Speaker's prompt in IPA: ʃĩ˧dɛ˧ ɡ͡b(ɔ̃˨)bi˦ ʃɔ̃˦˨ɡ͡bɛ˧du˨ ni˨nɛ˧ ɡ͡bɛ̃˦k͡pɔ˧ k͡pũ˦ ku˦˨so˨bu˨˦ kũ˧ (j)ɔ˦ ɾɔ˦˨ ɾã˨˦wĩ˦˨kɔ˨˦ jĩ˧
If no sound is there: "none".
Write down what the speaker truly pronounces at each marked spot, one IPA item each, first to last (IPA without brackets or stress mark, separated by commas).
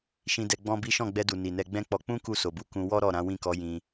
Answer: ɔ̃˦, w